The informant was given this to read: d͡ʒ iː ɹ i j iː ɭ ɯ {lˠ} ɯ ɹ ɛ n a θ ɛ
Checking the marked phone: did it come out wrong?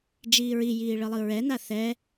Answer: no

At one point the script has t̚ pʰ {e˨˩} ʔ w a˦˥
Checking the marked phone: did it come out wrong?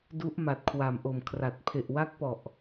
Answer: no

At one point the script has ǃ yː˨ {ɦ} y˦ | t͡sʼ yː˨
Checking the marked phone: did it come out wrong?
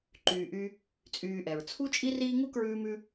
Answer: yes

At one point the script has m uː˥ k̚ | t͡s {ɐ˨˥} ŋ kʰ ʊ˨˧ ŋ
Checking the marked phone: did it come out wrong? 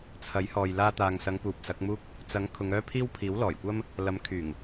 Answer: no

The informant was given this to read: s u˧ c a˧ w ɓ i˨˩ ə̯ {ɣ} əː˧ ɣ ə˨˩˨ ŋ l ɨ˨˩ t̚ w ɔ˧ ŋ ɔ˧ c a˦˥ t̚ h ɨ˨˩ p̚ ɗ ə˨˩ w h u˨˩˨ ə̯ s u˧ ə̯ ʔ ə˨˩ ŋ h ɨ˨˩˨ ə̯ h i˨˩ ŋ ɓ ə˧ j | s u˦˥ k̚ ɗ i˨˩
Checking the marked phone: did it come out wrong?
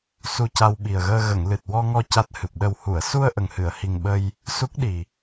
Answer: no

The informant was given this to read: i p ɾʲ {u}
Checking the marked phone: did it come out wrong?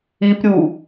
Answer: no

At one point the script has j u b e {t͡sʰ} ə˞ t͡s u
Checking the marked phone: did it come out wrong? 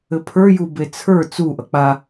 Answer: no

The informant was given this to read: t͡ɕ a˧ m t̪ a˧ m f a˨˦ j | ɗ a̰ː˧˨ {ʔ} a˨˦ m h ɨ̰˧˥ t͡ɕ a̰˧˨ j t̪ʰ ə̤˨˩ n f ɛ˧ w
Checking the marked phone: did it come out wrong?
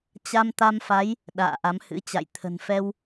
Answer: no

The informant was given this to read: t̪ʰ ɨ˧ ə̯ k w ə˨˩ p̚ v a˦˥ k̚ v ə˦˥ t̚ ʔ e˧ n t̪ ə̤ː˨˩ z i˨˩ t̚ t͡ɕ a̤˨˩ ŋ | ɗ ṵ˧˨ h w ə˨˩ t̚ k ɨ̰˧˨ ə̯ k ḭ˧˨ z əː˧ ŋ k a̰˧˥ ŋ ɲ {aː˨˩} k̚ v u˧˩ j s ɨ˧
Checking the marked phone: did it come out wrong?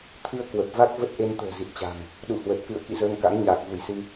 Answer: no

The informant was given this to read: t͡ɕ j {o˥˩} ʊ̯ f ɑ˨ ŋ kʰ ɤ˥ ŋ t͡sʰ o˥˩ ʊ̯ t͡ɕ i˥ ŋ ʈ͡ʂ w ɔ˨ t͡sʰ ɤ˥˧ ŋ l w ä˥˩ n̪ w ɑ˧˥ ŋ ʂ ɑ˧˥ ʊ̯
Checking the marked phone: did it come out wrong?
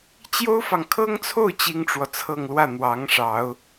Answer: yes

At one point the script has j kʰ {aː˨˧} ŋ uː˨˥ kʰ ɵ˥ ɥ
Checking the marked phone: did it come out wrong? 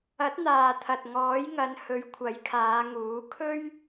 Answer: no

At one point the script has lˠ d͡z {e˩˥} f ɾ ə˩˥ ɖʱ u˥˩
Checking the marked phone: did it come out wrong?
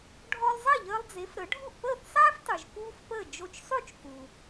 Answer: no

